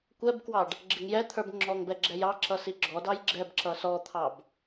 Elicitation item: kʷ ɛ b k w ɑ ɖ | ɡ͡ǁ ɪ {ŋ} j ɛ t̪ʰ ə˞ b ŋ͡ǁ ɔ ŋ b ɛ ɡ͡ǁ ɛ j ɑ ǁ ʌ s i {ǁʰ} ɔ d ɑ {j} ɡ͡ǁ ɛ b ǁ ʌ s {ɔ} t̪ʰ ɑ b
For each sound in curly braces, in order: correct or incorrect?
correct, incorrect: ɡ͡ǁ, correct, correct

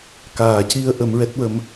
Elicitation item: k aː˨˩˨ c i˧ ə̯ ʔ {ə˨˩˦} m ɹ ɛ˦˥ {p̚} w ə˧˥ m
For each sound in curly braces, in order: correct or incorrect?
correct, incorrect: t̚

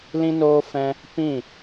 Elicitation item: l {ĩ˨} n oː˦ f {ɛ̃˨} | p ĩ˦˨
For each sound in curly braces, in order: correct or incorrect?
incorrect: ĩ˦, incorrect: ɛ̃˦

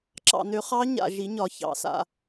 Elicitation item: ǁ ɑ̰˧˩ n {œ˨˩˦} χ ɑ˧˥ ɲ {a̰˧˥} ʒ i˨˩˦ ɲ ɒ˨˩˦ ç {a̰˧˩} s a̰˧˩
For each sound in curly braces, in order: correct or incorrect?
incorrect: ø˨˩˦, incorrect: a̰˧˩, incorrect: ɑ̰˧˩

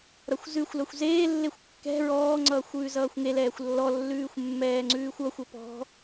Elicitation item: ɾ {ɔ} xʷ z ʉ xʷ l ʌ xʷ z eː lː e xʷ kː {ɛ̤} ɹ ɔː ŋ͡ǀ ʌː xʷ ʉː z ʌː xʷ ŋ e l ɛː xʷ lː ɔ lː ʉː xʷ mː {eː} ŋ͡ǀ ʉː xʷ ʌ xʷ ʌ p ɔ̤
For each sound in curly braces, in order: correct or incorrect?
incorrect: ʌ, correct, incorrect: ɛː

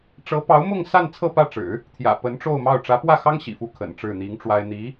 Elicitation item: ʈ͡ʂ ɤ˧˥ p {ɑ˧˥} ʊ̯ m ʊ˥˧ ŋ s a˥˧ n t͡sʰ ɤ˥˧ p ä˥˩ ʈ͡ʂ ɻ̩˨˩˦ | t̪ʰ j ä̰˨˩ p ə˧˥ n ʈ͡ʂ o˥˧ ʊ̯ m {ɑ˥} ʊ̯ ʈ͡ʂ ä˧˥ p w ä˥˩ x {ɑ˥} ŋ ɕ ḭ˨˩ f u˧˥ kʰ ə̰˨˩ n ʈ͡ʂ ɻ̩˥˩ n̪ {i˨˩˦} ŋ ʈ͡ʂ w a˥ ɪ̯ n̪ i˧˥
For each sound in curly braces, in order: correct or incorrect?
correct, incorrect: ɑ˥˩, correct, incorrect: i˧˥

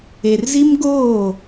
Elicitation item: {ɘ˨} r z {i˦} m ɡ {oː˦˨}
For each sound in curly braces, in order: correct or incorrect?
incorrect: e˨, correct, correct

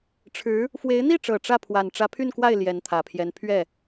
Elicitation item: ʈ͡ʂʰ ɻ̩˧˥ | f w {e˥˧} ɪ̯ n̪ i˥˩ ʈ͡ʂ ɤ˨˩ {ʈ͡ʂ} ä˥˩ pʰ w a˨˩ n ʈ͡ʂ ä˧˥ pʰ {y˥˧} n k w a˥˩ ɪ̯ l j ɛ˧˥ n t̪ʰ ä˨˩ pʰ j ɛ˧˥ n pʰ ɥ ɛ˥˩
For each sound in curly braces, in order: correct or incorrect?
incorrect: e˧˥, correct, correct

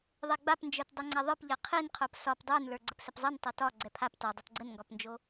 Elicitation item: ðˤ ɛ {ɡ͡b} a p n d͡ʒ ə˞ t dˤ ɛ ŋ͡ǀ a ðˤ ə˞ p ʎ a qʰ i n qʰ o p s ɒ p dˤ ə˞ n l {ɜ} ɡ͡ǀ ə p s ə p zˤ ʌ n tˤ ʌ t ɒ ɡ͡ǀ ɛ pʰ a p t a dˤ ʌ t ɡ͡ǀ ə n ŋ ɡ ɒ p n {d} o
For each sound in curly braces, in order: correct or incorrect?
correct, incorrect: ə˞, incorrect: d͡ʒ

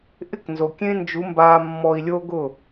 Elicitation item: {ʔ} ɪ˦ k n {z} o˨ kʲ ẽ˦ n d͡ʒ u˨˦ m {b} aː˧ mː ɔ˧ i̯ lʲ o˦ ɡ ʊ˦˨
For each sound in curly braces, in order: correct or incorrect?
correct, correct, correct

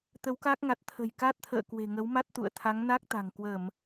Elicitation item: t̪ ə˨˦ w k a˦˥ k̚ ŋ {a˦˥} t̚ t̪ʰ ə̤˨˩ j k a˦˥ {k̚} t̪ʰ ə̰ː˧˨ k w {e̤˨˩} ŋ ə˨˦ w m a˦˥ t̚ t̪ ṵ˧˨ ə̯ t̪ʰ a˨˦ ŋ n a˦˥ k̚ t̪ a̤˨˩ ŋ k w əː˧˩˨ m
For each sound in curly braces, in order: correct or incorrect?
incorrect: a˨˩, incorrect: t̚, correct

